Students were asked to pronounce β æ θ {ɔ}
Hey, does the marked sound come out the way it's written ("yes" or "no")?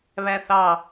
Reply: no